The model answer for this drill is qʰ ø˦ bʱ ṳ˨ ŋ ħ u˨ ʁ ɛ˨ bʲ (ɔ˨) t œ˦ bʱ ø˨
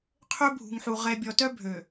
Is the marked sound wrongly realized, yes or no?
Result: no